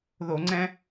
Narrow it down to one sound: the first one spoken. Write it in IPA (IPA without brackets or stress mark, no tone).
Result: ð